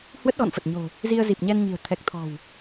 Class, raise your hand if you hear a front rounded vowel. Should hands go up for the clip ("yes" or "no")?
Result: no